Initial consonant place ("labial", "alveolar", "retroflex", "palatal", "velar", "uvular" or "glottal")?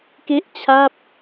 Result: velar